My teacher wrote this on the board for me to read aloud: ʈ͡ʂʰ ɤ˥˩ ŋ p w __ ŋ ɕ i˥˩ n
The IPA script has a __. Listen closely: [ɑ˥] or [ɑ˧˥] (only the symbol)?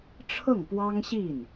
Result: ɑ˥